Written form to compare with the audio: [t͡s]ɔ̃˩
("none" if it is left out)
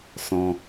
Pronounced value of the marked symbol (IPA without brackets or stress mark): s